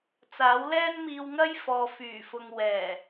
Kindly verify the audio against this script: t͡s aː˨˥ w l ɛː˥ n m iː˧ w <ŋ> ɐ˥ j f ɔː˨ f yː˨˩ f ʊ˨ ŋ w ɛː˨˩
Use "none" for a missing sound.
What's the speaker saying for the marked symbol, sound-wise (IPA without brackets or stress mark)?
ŋ